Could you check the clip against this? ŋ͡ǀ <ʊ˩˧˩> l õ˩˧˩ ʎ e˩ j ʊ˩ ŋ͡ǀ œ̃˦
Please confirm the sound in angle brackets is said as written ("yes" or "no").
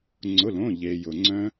yes